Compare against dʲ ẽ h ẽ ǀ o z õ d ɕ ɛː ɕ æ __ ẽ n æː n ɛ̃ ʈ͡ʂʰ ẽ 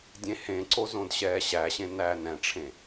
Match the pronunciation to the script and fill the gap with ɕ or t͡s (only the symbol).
ɕ